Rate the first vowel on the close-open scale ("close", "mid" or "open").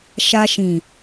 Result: open